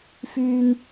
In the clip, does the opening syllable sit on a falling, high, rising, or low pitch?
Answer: low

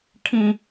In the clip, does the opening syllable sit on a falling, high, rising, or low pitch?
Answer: high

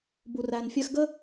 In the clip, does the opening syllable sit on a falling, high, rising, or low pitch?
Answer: low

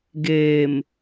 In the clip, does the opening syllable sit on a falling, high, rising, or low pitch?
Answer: low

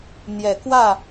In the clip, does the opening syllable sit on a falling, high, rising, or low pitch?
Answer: low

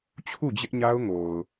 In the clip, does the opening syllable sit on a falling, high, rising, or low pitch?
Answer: falling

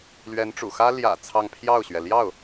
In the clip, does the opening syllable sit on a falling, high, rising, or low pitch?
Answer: rising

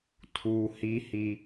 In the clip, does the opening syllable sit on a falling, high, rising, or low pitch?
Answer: high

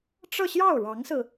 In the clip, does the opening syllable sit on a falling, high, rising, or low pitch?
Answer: falling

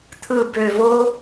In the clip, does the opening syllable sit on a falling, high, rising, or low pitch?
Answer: low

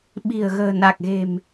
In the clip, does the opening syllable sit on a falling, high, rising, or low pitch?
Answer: low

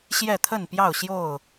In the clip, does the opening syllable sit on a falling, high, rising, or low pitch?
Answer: falling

